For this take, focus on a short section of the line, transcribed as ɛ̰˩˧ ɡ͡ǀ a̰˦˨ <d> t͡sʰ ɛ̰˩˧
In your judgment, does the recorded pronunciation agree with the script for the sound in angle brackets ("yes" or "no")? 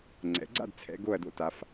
yes